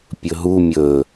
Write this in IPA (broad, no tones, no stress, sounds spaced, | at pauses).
pʲ ɵ ɦ u mʲ ɵ